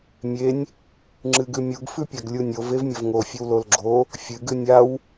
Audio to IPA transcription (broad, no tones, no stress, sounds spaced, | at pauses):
mʲ e nʲ | ŋ͡ǁ ɨ ɡ ʉ mʲ u ɡ f ʉ pʲ a ɡ lʲ u nʲ o v e v mʲ ɐ v ŋ o fʲ ɵ w l o l ɡ͡ǁ o | fʲ ɨ ɡ ɨ nʲ a w